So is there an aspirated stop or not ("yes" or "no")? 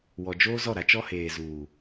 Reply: no